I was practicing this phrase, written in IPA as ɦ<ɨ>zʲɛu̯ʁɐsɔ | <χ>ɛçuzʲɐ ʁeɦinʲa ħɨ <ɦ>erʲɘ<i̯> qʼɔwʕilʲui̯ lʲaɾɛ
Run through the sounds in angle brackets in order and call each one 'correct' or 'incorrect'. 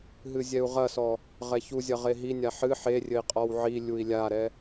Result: correct, incorrect, incorrect, correct

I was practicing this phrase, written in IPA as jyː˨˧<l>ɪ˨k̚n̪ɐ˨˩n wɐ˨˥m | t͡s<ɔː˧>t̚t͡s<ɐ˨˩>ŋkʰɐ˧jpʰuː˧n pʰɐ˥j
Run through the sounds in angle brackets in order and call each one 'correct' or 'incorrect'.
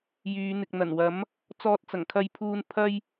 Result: incorrect, correct, correct

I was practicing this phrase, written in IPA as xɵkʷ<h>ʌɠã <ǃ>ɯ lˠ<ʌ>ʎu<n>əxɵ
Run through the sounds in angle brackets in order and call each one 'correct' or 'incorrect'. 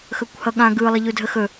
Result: correct, incorrect, incorrect, incorrect

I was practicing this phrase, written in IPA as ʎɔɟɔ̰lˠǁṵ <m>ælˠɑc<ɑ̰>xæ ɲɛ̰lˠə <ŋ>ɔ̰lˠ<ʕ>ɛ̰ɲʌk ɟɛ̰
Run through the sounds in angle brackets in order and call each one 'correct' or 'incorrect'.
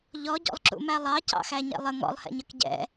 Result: correct, correct, correct, incorrect

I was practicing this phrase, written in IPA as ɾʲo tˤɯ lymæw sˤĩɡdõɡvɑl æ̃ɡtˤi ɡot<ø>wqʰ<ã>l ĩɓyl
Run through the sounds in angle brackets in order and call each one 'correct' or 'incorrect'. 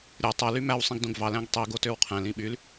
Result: correct, incorrect

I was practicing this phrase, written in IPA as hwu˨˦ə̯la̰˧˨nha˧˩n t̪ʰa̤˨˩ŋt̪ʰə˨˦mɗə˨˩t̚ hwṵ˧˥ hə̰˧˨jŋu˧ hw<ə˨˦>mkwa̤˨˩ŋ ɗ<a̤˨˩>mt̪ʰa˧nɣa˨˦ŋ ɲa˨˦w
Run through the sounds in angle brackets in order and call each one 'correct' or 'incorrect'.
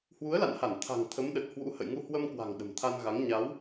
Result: incorrect, incorrect

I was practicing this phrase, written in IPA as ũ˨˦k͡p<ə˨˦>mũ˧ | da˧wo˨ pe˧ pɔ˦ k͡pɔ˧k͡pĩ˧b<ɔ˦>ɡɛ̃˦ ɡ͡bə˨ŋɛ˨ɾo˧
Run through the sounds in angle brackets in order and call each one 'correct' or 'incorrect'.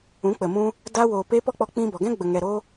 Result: incorrect, incorrect

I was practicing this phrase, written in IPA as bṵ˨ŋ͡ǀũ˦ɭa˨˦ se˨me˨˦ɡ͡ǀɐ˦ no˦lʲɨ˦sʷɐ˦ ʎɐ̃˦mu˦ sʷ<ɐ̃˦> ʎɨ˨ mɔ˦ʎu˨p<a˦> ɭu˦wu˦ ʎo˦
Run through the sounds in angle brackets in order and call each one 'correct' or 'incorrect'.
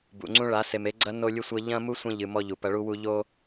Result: correct, incorrect

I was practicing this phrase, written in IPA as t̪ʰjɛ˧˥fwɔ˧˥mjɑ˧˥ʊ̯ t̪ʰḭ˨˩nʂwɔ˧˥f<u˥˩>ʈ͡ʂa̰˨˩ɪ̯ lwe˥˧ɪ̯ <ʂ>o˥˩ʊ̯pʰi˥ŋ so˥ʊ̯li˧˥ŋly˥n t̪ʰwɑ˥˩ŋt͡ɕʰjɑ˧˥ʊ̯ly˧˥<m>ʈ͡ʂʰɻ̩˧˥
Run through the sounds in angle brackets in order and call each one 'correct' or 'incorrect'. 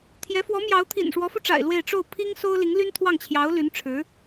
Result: incorrect, incorrect, incorrect

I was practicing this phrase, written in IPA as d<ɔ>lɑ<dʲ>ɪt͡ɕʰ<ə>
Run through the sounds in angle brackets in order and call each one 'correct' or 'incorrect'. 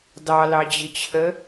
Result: incorrect, incorrect, correct

